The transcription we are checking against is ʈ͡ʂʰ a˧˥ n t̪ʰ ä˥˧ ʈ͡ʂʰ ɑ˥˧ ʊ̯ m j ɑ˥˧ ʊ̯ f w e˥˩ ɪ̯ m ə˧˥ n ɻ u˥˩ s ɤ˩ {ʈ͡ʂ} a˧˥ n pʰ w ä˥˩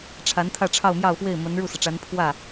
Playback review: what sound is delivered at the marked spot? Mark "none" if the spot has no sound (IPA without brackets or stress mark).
ʈ͡ʂ